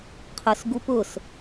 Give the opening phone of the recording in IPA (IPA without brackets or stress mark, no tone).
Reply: qʰ